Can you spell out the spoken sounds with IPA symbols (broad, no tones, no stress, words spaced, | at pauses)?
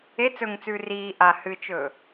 e t͡sɵŋt͡sʉː riː ʔa hɨt͡ʃɵː